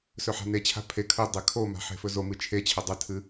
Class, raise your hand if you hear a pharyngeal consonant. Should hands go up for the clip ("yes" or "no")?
yes